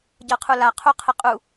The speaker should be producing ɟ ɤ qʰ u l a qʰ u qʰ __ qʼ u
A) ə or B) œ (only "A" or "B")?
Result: A